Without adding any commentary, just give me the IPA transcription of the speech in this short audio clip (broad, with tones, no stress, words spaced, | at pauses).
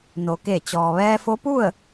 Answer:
no˩˧ke˧˩t͡ɕɔː˩ ʋɛː˧fo˧˥pu˥˨ə̯